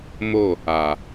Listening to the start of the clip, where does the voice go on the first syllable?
falling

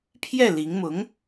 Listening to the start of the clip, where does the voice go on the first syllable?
falling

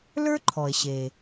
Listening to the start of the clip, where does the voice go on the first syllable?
high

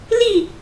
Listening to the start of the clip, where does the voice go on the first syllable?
falling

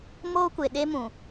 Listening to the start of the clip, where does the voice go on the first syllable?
high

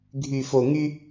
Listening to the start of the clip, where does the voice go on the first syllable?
low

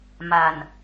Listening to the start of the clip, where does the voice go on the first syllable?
low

